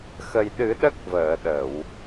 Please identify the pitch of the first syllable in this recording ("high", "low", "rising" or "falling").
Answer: low